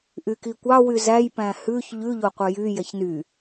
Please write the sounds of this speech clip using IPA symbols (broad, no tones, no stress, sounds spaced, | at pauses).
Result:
ʔ y k i kʷ ɑ w y z æ j p æ̃ h ʉ ç ʎ ʉ ʎ o qʷ œ j y j ɛ ç n y